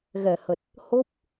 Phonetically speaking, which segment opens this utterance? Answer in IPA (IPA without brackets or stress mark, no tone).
ɣ